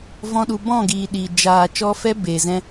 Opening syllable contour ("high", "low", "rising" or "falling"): high